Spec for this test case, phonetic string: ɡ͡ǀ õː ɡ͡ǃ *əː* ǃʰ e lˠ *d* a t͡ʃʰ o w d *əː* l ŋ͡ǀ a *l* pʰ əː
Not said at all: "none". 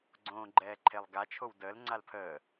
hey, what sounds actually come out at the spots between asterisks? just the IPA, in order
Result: ɛː, ɡ, əː, l

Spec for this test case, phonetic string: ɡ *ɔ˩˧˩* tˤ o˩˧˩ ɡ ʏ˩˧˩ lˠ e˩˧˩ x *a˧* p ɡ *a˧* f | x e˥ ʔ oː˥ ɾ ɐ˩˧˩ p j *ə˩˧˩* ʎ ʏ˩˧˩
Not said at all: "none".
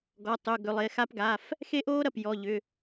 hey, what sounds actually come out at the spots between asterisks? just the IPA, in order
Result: ɔ˩˧˩, a˧, a˩˧˩, ɔ˩˧˩

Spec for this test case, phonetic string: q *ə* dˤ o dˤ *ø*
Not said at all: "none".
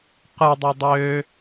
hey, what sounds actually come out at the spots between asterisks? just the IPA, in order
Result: ɯ, ø

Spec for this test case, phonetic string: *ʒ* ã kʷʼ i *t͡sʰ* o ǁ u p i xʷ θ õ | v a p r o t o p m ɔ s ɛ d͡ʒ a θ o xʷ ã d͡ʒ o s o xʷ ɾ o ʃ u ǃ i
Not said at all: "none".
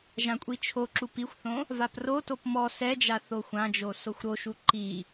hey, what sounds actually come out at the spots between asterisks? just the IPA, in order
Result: ʒ, t͡ʃʰ

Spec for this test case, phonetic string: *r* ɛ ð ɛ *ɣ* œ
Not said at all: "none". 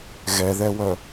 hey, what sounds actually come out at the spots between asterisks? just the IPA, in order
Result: ɣ, w

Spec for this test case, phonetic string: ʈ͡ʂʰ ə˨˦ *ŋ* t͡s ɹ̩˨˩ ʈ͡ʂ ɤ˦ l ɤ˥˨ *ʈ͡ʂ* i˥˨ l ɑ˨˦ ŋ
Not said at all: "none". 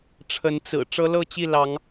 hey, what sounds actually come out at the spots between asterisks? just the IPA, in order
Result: n, t͡ɕ

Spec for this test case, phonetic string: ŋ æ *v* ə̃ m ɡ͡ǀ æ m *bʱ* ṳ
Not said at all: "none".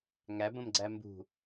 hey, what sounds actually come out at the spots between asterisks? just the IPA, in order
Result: b, b

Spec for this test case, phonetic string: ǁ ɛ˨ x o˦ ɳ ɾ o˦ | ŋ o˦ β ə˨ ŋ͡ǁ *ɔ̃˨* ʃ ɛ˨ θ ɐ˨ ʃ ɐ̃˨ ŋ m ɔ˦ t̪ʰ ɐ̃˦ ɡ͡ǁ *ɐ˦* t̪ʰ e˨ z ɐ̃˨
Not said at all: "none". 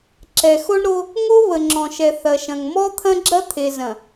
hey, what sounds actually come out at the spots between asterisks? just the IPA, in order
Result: ɔ̃˨, ɐ˦

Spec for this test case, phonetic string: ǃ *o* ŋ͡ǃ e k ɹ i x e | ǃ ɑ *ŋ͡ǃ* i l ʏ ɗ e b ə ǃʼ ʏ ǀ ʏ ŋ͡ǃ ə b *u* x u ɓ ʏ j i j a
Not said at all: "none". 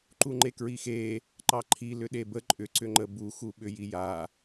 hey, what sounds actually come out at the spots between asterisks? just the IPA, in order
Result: u, ǃʰ, u

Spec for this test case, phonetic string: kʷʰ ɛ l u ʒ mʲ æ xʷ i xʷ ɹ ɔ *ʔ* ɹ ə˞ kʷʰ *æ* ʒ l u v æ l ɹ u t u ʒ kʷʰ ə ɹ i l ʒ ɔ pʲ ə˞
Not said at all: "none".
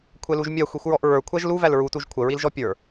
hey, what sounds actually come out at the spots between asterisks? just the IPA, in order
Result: ʔ, æ

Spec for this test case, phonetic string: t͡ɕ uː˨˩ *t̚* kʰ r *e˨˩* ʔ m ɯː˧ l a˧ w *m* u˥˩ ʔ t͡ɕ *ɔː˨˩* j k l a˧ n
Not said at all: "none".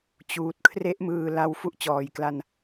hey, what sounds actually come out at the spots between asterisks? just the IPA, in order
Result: t̚, e˦˥, f, ɔː˨˩

